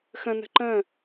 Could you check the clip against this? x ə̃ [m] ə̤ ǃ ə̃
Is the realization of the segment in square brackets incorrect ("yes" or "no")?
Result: yes